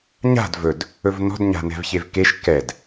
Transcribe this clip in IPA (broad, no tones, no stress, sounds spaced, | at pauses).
ɲ a̤ d v ɵ d | ɵ v n ɔ̤ d ɲ a̤ n ɛ̤ v ç e v k e ʃ k ɛ d